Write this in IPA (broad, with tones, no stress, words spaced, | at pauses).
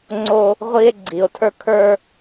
ŋ͡ǀo˦ | ʁʷi˦e̯ ɡ͡ǀi˨o̯tʰə˞˦kʰə˞˦